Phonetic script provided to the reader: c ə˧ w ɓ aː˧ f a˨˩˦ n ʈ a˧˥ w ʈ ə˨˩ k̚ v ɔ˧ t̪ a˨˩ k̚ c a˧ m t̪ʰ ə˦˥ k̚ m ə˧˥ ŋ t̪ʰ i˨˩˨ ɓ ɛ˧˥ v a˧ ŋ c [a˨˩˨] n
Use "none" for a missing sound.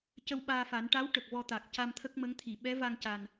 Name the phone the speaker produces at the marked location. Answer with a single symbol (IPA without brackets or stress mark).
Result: a˨˩